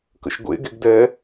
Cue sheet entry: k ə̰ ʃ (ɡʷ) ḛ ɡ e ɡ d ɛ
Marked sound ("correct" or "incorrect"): correct